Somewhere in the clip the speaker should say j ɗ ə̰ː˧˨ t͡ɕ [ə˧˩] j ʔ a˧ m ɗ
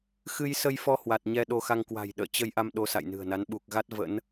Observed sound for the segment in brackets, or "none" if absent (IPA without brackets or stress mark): ə˧